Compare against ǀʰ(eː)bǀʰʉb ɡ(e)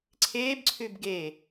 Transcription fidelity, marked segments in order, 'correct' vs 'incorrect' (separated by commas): correct, correct